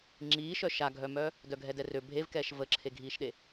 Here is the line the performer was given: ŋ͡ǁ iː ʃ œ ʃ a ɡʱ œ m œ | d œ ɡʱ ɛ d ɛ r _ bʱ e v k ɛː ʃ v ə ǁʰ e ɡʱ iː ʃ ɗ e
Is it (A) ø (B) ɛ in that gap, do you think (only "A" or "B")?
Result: A